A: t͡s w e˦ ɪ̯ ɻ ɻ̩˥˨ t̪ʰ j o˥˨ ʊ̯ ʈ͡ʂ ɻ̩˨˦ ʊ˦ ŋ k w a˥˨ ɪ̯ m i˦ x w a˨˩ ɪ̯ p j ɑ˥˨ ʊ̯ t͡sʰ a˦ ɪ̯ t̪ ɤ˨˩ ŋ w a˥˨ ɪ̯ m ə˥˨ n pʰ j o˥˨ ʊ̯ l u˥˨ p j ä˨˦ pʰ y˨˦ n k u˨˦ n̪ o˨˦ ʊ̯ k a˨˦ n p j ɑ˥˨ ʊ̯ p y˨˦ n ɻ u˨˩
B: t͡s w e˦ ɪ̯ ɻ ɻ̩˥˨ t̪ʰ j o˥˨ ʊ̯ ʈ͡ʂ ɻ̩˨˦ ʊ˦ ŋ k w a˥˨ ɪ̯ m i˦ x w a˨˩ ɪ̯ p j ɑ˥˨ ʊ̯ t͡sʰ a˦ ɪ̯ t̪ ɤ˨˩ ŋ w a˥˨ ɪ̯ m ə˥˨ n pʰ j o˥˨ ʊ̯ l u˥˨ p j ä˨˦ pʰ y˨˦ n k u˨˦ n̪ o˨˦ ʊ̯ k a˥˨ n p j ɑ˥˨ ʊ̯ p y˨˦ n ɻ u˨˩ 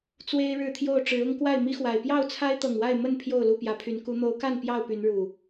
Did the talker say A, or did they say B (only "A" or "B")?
B